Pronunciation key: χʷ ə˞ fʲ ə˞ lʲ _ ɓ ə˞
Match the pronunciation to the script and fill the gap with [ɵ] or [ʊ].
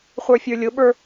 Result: ʊ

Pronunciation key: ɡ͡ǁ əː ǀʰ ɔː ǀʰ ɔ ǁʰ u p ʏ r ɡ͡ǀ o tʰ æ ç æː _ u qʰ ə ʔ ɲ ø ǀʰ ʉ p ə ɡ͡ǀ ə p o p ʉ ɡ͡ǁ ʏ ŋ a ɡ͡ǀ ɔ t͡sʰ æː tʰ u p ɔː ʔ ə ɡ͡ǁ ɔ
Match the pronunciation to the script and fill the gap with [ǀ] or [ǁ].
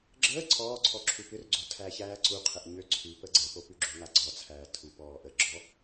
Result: ǀ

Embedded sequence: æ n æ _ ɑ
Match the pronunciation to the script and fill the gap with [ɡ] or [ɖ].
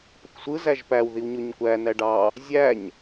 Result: ɖ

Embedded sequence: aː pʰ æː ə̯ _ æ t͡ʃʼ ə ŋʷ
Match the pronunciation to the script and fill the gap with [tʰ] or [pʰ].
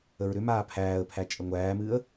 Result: pʰ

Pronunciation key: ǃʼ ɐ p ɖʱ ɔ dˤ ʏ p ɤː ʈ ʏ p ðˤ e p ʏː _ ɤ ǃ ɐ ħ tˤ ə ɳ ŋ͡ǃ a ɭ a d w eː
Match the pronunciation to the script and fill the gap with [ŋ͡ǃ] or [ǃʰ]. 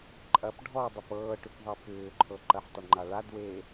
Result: ǃʰ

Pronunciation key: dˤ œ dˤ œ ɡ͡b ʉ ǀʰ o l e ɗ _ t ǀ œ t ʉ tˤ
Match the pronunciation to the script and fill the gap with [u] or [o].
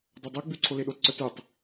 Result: o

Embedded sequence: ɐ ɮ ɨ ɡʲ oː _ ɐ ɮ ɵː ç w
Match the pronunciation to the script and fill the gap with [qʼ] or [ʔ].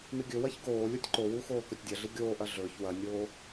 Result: ʔ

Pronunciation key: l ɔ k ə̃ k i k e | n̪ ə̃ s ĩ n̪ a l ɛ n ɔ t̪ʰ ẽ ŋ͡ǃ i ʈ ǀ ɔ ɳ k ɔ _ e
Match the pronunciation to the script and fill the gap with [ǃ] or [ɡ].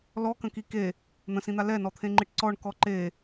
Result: ǃ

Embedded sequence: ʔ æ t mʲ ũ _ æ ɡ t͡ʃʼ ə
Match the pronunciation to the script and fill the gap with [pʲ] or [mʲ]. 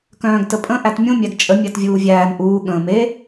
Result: mʲ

